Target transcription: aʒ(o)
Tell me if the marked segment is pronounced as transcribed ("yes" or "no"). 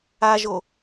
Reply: yes